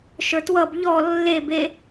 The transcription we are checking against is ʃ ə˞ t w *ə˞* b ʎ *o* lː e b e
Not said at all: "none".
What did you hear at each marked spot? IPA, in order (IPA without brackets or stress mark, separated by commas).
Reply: ʌ, ɔ